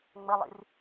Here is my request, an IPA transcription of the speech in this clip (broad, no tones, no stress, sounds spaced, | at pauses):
ŋ͡m ə lˠ ḭ r